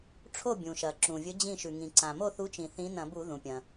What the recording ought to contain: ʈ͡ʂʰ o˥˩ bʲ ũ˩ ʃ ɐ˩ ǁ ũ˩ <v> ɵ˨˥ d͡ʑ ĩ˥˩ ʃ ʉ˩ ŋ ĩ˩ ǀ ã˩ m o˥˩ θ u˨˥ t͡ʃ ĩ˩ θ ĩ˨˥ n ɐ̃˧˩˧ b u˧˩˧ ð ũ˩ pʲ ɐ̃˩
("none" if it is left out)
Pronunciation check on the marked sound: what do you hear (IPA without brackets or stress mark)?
vʲ